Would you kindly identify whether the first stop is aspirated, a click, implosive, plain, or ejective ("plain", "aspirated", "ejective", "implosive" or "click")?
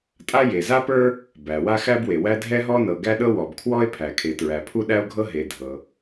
ejective